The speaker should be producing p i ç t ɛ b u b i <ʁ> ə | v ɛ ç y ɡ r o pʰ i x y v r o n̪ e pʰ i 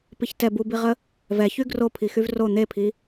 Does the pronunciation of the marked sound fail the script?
no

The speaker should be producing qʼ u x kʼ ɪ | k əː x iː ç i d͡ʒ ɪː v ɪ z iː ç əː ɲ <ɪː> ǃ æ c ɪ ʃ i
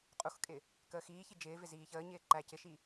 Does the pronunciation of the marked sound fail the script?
no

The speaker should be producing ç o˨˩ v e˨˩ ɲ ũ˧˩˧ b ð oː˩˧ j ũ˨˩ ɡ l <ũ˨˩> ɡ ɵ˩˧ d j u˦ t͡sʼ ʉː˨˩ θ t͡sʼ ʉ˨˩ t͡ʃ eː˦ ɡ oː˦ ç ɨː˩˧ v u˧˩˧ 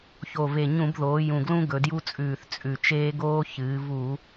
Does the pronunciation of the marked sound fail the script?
yes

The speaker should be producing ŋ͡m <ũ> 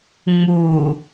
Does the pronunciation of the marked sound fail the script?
yes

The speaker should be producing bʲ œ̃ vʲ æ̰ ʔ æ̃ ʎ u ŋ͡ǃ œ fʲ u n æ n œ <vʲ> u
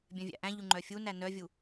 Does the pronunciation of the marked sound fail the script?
no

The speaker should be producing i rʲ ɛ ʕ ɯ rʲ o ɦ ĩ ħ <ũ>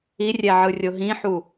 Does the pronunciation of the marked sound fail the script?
yes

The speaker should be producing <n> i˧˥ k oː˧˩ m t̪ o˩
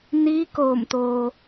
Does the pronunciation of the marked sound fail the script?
no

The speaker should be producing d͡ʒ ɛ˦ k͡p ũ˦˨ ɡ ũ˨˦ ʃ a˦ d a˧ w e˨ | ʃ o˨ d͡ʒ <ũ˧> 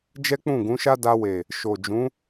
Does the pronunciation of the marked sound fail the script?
yes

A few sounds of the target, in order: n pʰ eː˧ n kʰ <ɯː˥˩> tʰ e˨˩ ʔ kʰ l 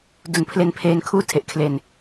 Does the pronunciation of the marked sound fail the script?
yes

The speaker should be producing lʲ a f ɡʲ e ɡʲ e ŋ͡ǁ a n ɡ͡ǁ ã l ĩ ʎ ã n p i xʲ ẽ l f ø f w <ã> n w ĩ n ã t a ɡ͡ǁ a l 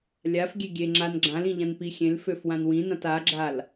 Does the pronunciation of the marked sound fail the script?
no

